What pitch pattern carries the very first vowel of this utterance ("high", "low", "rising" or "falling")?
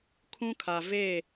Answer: high